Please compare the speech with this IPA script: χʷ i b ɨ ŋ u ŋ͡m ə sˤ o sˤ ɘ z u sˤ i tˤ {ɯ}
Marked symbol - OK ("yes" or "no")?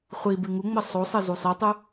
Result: yes